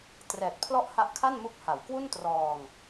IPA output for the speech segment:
trɛː˨˩t̚pʰlɔ˦˥ʔ ha˦˥ʔkʰa˥˩nmu˦˥k̚ ha˩˦wkwu˥˩n trɔː˧ŋ

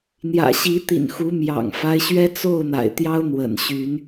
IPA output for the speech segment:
n̪jä̰˨˩ɕi˨˦ t̪ḭ˨˩nxu˨˦ mjɑ̰˨˩ŋfa˦ɪ̯ɕɥɛ˦ t͡so˥˨ʊ̯n̪a̰˨˩ɪ̯t̪jɑ˦ʊ̯ n̪wə̰˨˩nɕy˨˦n

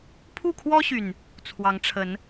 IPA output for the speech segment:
pʰu˥˨kʰwɔ˦ɕy˨˩n | t͡sʰwɑ˨˦ŋʈ͡ʂʰə˨˦n

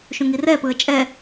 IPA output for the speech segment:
ʃũŋirɛpɯə̯ t͡ʃʼɛ

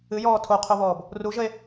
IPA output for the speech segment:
ɨjɔː tʰoqʰoβɔːb | ruʒəe̯

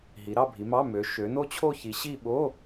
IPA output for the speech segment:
ɦi˨˦ɾɑ˥˧bʱi˨˦mɑ˧˥˧ mø˨˦ ʃø˨˦no˥˧t͡ɕʰo˥˧çi˨˦ ɕi˥˧ ɓo˧˥˧

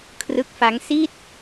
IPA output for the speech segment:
kʰrɯ˦˥k̚fa˦˥ŋ si˦˥t̚

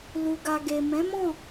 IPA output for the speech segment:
lu˨ɡa˨ɡe˨ mɛ̃˨˦mɔ̃˦˨

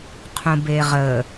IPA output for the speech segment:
qʰũbeʁə

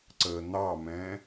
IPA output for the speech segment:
ǀə n̪ɑmɛ̃

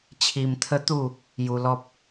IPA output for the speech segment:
t͡ɕʰi˧mt̪ʰə˦t̪u˥˧ | ju˧lɔ˦p̚

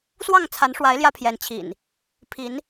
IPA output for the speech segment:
swɑ˥˨ŋt͡sʰa˨˦nʂwa˨˦ɪ̯ ljä˦pʰjɛ˨˦nt͡ɕʰḭ˨˩n | pʰi˨˦n

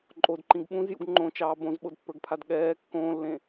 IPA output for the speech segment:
ǃʼodǃĩɡ ɓũzjṵɡ ŋ͡ǃõt͡ʃɑː bõzɓodpːə˞ɡpʰad ɠɛː kːõːlːẽ

